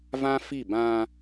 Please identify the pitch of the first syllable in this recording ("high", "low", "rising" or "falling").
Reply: high